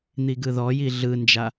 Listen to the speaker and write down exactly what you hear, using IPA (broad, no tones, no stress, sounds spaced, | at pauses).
n̪ i ɡ ɯ ð ɔ j i ɮ ɯ n d͡ʒ a